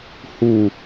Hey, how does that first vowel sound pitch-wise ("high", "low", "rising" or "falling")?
low